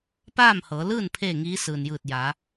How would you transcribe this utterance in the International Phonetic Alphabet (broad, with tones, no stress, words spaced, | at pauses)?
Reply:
paː˥˨mhɤː˩˧lɯː˥˨n pʰeː˥˨ŋiː˧˥ sɯː˩njɯː˧˩t̚ ja˩˧